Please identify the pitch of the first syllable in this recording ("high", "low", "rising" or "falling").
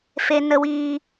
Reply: low